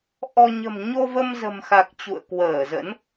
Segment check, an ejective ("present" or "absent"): absent